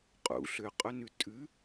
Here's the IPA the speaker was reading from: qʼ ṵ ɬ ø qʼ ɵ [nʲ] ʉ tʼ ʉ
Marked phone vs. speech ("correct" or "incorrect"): incorrect